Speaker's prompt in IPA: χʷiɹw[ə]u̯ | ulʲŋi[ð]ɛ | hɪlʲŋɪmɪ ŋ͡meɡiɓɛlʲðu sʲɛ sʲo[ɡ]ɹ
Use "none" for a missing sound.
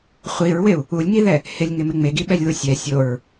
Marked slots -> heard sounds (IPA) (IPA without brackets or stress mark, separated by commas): ɪ, ð, none